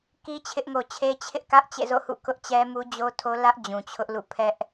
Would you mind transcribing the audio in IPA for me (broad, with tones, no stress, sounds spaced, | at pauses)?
k i˦ t͡ɕʰ ɪ˦ ʔ ŋ o˨ t͡ɕʰ e˦ t͡ɕʰ ɪ˦ ʔ k ä˦ ʔ t͡ɕ ḛ˦˨ z o̰˦˨ h ṵ˦˨ k ʊ˦ ʔ t͡ɕ ɛ˦ m u˦ d͡ʑ o˦ tʰ o˦ l ä˦ ʔ d͡ʑ ũ˨ t͡ɕʰ ʊ˦ ʔ l ṵ˦˨ pʰ ɛ˦ ʔ